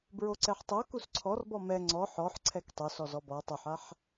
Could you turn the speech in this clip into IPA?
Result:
b ɹ o ǀ ɛ ħ tˤ o k u s ǀʰ ɔ r b ɔ m ɛ ŋ͡ǀ ɔ ħ ɔ ħ ǀʰ ɛ k tˤ o s ɔ z ɔ b ɔ tˤ o ħ a ħ

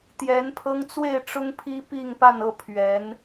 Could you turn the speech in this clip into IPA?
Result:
t̪ j ɛ˧˥ n pʰ ɤ˥ ŋ t͡s w e˥˩ ɪ̯ ʈ͡ʂ ʊ˥ ŋ pʰ i˥ p i˥˧ ŋ p a˥˧ n ɤ˥˩ pʰ ɥ ɛ˧˥ n

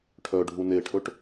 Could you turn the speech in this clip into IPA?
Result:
ʈʰ œ ɖʱ u n e ʈʰ ɵ ʈ

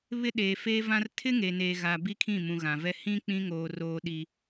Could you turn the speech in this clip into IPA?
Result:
β ɪ˦ ɗ eː˨ f eː˦ v ã˦ r tʰ ɪ˦ ŋ e˨ n eː˨ ɣ a˨ b i˦ kʰ ĩ˦˨ m ũ˨ ɣ ã˨ v ɛ˦ h ĩ˦ k͡p ĩ˦ ŋ oː˨ r oː˦ ɗ i˦

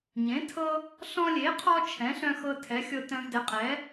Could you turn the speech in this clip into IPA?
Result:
ɲ ẽ˩˥ tʰ ɤ˦ | ɬ ɔ̃˦ lʲ e˩˥ qʰ ɔ˦ t͡ʃʰ ɛ̃˩˥ ɬ œ̃˦ x ɤ˦ tʰ ɛ˩˥ xʲ ɤ˦ t œ̃˦ v d ɛ˩˥ qʼ ɛ˩˥

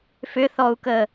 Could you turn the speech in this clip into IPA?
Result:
f ʏ θ ɔ u̯ k ə

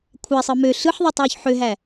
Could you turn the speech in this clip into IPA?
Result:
kʷʰ æ sˤ ɯ m ø ɬ ɯ ħ ðˤ ɑ tˤ w o ç ħ ø ɦ æ

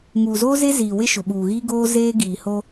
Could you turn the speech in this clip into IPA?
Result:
ŋ uː˨ z oː˦ z e˦ z iː˨ w ɪ˦ ʃ ʊ˨ ɓ uː˨ ɣ i˦ ɡ oː˦ z eː˦ ɡ iː˨ h o˦

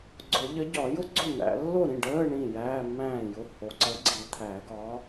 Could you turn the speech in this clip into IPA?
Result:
ɡ͡ǀ ʊ˨˩˦ ʎ ə˨˥ ɟ ɒ˨˩˦ j ʊ˥ ɡ͡ǀ ʊ˥˩ n̪ æ̰˨˩˦ lː o˥˩ ɾ ĩ˥˩ ɖ əː˧˥˧ ɳ ĩ˥˩ j æː˧˥˧ mː æ̃ː˥˩ j ʊ˧˥˧ h o˨ ǀ ə˨˥ ɡ͡ǀ i˨˩˦ t̪ʰ æ˨˩˦ ɡ ɒ˨˥

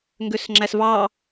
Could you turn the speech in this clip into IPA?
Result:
ŋ ɡ ø s ŋ͡ǁ æ s v ɑ

